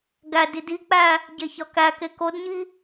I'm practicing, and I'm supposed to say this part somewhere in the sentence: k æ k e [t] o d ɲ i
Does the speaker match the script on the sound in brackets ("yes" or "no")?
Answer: no